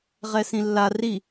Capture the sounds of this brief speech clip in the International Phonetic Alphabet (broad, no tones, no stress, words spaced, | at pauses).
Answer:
ʁɛsĩlːa ri